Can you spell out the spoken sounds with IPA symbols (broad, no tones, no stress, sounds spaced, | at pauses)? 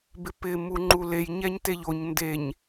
b ɪ p ɪ m u ŋ͡ǃ u l e j ɲ ɛ ɲ t e ʎ o ɲ n d e ɲ